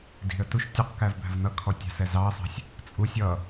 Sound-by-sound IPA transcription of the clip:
d i̤ ə̯ t u ʃ tʲ ʊ q k æ v b æ̤ v n ʌ kʰ ɔ tʲ ɑ̤ s ɛ z ɑ ə̯ sˤ ɑ̤ sʲ | t͡sʼ u sʲ ʌ

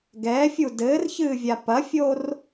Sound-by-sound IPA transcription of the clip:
ɡ ɛː fʲ u d ɘː r ç ɨː vʲ a p ɐ fʲ o r

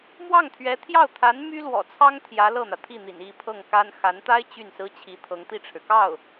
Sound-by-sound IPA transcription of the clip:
m w ɑ˥˩ ŋ t̪ʰ ɥ ɛ˧˥ t̪ʰ j ɑ˥˩ ʊ̯ t̪ʰ a˧˥ n m y˥ l w ɔ̰˨˩ t͡sʰ ɑ˥ ŋ t̪ʰ j ä˧˥ l ɤ˥˩ n̪ ä˩ t̪ʰ i˥˩ n̪ ḭ˨˩ n i˥˧ pʰ ɤ˥˩ ŋ k a˥ n x a˧˥ n t̪ a˥ ɪ̯ t͡ɕ y˥˩ n s ɹ̩˥ t͡ɕʰ i˧˥ t̪ʰ ɤ˧˥ ŋ t̪ i˥˩ ʈ͡ʂʰ ɻ̩˩ k ɑ˥˩ ʊ̯

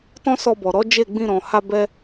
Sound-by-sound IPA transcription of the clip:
t ɔ̃˦ s ɔ˧ b ɔ˨ ɾ ɔ˨˦ d͡ʒ e˦˨ ɡ͡b ĩ˧ ɾ ɔ̃˨ h a˧ b ɛ˦

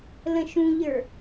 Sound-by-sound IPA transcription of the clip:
l ə̃ ʃ ũ ʎ ə˞

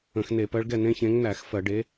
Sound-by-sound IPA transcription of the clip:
ə̃˧˩˧ x n e˧˩˧ p ɜ˨˥ ɭ ɡ ɛ˥˩ n ẽ˦ ç ẽ˨˥ ŋ n æ˧˩˧ x f ɜ˧˩˧ ɖ e˨˥

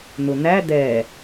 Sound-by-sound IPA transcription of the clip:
n̪ ʊ n̪ æ d̪ ɛ

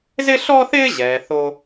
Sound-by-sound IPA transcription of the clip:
z ɪ˥ ɬ ɔ˥ θ ɪː˥ ʑ ɛː˩˧ θ o˥

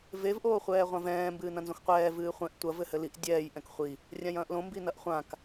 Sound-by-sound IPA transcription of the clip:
v e v ʔ oː χʷ ɛː ʁʷ ã v ɛ̃ː m b ɨː n ɐ̃ n z õ x qʷ ɛː v ɨː χʷ ɛ̃ ʔ tʷ ɐ v ɘ h ɘ l i ʔ dʲ ɛː j ʔ ɛ̃ k χʷ i | rʲ ã j ɐ̃ː ʔ l õ m b i n ɐ ʔ χʷ ã k

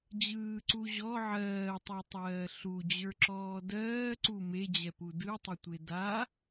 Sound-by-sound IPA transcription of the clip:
d͡ʑ ɯː ǀ u ʑ ɔ ʕ ɜː tˤ e tˤ ɜː ɬ u d͡ʑ ə˞ ǁ ɔː d ɜː ǀ u m e d͡ʑ ɛ p u d ɯ tˤ ɘ tʷ e d a

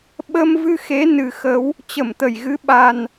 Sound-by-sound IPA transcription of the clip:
ɓ ə˧ m v ɨ˧ x e˨˦ n ɨ˨˩ x ə˨˦ w | t͡ɕ ə˧˩ m t̪ ə˧˩ j ɣ ɨ˨˦ ɓ a˨˩ n

